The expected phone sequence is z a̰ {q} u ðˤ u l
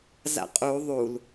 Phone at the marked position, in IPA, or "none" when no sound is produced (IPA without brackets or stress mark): qʼ